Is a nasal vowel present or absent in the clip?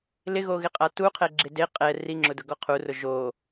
absent